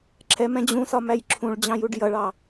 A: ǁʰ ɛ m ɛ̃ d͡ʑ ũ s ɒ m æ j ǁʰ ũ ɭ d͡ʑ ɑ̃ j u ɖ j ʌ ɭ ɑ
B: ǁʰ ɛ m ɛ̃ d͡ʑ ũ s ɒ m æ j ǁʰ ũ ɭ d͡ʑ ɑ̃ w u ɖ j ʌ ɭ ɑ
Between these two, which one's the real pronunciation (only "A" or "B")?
A